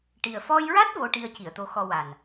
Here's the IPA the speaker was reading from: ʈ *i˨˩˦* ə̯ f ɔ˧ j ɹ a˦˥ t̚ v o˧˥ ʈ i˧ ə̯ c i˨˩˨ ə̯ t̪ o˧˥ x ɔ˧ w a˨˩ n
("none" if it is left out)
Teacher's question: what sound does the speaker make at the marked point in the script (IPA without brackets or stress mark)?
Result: i˨˩